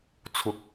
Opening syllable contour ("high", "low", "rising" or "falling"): rising